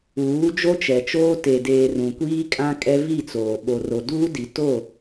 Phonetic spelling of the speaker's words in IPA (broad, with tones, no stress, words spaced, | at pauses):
uː˨˦d͡ʒo˦t͡ʃɛ˨t͡ʃoː˦ te˨deː˨ rũ˨kʷiː˦kʼã˦kʼɛ˦ vi˦˨t͡soː˨ ɓo˨ro˨ duː˦di˨ to˦˨